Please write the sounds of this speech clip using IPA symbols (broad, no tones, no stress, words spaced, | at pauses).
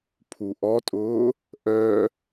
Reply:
pʰuʔɔtʼʊː | ʔœ